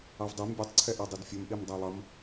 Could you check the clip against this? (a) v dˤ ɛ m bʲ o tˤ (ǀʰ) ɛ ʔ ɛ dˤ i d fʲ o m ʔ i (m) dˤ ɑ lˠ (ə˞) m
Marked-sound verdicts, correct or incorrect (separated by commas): incorrect, correct, correct, incorrect